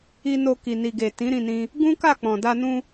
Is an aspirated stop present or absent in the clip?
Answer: absent